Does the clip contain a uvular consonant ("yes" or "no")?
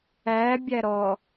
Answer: no